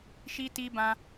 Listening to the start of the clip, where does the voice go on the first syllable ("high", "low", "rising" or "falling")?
high